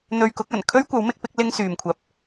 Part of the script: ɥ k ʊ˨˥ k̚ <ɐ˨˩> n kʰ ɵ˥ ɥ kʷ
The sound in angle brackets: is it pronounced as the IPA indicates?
yes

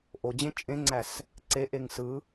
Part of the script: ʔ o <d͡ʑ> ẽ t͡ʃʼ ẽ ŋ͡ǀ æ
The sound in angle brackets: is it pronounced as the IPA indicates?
yes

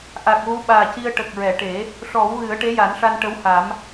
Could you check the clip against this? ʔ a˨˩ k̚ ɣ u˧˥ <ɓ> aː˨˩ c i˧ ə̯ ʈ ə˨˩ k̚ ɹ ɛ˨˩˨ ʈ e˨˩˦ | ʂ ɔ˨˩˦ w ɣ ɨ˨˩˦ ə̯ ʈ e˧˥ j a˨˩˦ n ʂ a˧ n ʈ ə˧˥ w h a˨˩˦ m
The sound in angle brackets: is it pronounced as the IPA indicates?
yes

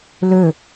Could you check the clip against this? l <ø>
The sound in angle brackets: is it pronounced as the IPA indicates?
yes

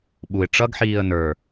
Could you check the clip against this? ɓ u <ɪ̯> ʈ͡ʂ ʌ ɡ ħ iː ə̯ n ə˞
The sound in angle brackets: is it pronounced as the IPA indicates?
yes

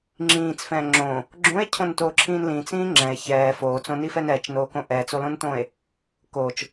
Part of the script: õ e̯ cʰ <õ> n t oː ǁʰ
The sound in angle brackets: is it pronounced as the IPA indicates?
yes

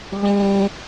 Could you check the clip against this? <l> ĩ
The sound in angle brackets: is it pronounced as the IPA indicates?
no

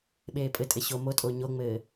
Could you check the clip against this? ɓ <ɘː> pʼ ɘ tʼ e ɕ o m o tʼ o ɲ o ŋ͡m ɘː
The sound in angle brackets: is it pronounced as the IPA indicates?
no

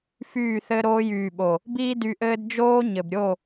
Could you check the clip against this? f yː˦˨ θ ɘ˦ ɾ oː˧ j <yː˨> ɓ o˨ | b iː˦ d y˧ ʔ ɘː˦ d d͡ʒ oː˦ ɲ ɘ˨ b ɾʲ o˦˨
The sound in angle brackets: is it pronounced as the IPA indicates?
yes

